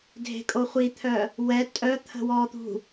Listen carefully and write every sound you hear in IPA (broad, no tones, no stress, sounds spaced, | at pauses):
dʱ e̤ kʼ o χʷ i t̪ʰ œ | w ɛ tʼ œ t̪ʰ ə̤ w ɔ t̪ ṳ